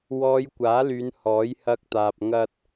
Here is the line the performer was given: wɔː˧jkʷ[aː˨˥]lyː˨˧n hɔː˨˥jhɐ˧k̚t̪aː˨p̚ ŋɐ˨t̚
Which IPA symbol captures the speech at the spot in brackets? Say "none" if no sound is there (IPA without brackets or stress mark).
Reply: aː˨˥